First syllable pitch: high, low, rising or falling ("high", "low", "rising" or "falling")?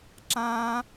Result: high